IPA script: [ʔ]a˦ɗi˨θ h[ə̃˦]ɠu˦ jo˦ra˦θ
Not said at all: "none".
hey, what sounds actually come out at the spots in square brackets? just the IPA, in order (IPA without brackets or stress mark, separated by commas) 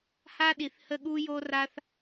h, ə˦